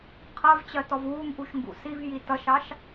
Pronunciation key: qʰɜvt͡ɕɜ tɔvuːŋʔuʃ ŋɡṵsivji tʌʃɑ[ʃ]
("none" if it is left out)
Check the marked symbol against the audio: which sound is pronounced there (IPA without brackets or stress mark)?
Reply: ʃ